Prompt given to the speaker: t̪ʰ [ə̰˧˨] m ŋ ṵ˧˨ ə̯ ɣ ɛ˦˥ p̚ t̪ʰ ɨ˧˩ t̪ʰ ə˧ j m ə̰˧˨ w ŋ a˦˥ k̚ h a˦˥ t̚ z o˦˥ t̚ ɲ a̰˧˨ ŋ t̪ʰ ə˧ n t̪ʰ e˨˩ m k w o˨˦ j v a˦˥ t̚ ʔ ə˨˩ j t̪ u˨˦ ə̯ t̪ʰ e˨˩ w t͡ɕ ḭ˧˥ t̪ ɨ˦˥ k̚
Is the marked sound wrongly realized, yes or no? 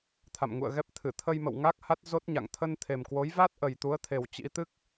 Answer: yes